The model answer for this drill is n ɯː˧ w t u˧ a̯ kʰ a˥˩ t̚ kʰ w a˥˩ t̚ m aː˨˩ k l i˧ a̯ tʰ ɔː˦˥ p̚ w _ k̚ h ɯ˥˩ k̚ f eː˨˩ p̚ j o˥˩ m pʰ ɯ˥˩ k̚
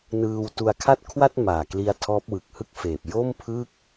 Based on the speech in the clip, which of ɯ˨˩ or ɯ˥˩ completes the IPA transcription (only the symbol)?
ɯ˨˩